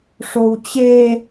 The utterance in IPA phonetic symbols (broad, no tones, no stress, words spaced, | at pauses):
ʂowt͡ɕe